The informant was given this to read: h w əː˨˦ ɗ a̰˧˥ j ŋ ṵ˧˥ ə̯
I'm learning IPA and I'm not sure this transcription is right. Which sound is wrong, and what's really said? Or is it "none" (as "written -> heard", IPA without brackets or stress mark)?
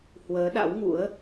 j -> w